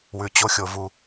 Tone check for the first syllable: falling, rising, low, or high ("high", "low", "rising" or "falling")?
low